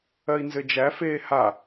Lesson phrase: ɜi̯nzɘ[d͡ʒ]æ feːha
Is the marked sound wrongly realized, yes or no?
no